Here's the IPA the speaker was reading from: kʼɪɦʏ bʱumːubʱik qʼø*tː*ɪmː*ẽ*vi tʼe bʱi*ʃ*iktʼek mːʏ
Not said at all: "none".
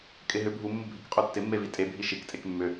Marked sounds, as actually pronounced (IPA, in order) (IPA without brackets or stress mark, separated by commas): tː, e, ʃ